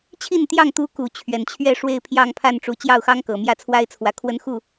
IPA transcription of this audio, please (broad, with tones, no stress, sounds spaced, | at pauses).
t͡ɕʰ i˥˨ n t̪ j ɑ˥˨ ŋ t̪ u˦ k u˨˦ t͡ɕʰ ɥ ɛ˨˩ n t͡ɕʰ ɥ ɛ˥˨ ʂ w e˥˨ ɪ̯ pʰ j ɑ˥˨ ŋ pʰ a˥˨ n ʈ͡ʂ u˨˩ t͡ɕ j ɑ˥˨ ʊ̯ x ɑ˦ ŋ k ɤ˨˩ m j ä˥˨ t͡sʰ w a˦ ɪ̯ t͡sʰ w ä˨˦ kʰ w ə˦ n x u˥˨